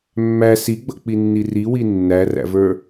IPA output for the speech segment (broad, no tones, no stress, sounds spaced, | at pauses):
mː æ s i ɡ͡b ʌ k͡p i nː i r i w i nː æ r æ̰ v ə˞